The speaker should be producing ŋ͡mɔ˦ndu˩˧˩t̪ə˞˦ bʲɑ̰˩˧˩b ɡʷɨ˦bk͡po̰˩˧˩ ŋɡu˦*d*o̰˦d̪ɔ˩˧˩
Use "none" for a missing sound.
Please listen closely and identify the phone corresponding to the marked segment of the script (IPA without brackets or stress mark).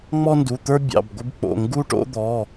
ʈ